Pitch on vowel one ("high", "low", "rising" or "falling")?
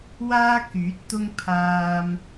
high